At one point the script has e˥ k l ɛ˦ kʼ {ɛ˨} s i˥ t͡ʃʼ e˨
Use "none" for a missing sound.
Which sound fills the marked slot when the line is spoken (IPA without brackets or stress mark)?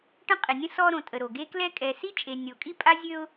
ɛ˨